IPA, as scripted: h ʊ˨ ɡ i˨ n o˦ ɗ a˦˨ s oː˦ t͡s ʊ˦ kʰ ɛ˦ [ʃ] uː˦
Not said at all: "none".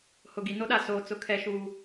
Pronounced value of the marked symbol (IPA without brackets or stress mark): ʃ